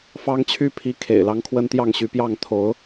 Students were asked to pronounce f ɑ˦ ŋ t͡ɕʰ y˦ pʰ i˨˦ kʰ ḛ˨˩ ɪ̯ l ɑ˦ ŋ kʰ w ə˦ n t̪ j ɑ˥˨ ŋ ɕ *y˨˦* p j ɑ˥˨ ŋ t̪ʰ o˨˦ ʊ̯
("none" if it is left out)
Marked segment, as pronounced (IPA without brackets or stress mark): y˨˦